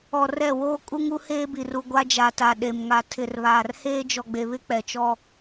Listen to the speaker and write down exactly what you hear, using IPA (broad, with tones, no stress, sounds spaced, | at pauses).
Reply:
ɔ˨ r ɛ˦˨ w oː˦ kʼ u˦ ŋ u˦ h eː˦ b i˨ r u˨ ɡʷ a˦ d͡ʒ a˨ t a˨ ɗ e˨ m ŋ a˨ tʰ ɪ˨ r β aː˨ r h eː˦ d͡ʒ ɔ˨ ɡ͡b e˨ β ɪ˦ k͡p ɛ˨ t͡ʃ ɔ˦